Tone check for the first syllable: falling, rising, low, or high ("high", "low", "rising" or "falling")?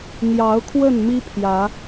rising